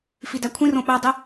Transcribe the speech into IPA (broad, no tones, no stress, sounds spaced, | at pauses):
f i d æ kʷʰ ĩ r õ ɓ æ dˤ i